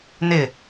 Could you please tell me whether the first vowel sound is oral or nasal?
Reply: oral